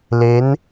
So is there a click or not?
no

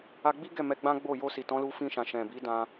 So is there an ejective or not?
no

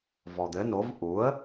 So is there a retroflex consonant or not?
no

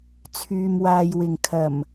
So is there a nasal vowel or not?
no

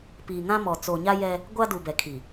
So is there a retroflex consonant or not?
no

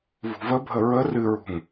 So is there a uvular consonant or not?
no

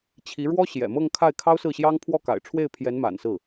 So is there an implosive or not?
no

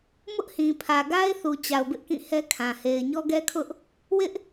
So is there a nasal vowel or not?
yes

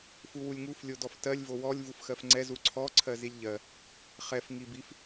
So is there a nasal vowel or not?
no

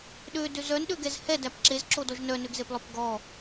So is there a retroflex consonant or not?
no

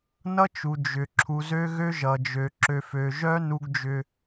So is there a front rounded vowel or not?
yes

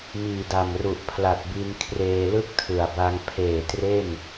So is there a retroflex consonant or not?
no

